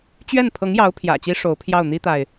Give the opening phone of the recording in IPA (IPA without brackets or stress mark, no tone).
t͡ɕ